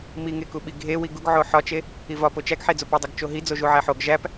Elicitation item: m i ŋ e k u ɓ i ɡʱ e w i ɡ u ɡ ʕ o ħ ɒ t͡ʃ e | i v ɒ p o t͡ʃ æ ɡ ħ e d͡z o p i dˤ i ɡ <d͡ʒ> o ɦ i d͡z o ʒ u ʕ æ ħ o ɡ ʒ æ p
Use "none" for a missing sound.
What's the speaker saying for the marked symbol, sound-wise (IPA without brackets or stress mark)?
t͡ʃ